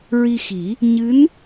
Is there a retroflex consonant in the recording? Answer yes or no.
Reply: no